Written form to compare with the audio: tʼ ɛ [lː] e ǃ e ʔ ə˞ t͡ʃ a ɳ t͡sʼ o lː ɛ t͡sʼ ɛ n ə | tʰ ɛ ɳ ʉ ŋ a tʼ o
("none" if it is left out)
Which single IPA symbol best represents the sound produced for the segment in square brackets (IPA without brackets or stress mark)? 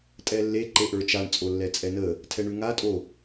lː